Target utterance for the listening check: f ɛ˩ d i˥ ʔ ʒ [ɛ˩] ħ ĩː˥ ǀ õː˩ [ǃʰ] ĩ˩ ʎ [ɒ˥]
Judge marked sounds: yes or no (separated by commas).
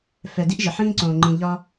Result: no, no, yes